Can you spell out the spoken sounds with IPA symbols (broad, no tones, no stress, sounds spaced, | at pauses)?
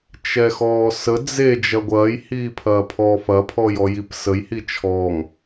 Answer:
t͡ʃ ɛ x ɔː s ə d͡z e d͡ʒ ɐ ɡʷ ɐː j h iː pʰ ɐː pʰ ɔ f ɐ pʰ ɔː j ɔ j i p s ə j h i t͡ʃʰ ɔː ŋ